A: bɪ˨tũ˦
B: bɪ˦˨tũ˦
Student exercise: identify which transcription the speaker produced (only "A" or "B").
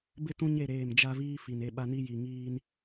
B